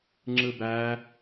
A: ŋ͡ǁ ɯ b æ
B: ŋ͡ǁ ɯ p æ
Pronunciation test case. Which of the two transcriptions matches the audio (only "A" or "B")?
A